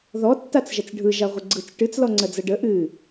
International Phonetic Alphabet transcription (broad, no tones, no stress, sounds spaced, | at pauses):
ð ɔ tː a t͡s ʒ ɐ t͡s ɖʱ ɯ ʒ a ʁʷ ə ɡ͡ǀ ɯ t͡s ʈ ɨ t͡s l ɔ ŋ͡ǀ ɜ d͡z ɐ ɖ ə ʔ ɨ